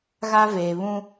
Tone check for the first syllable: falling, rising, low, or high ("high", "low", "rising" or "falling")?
high